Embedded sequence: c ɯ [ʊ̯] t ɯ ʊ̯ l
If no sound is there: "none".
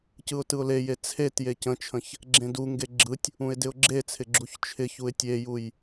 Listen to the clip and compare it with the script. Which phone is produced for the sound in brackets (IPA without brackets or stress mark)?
ʊ̯